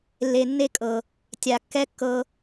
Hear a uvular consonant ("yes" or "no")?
no